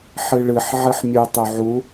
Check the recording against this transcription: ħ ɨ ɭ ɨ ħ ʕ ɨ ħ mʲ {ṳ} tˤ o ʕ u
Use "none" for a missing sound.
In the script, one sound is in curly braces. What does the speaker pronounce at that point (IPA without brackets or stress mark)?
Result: u